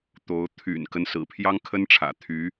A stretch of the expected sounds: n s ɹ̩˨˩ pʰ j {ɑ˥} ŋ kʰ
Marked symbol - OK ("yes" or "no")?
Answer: yes